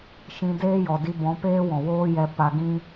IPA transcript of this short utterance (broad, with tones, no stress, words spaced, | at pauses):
ʃĩ˧deː˦jɔ˨di˧ bɔ̃˨˦peː˦wɔ̃˨ woː˦jɛ˧ pa˧ɡĩ˦